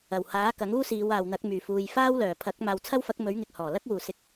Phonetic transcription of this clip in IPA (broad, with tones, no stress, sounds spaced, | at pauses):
ɐ˨˩ w h aː˨˥ k ɐ˨˥ ŋ uː˥ s iː˨˧ w aː˨ w n̪ ɐ˨˥ k̚ m yː˨˩ f uː˨ j f aː˥ w l œː˨˩ pʰ ɐ˨˥ k̚ m aː˨ w t͡sʰ ɐ˥ w f ɐ˨˥ k̚ m ɵ˨˥ ɥ ŋ ɪ˨ k̚ h ɔː˨˩ l ɐ˥ k̚ w uː˨˩ s ɪ˨˥ k̚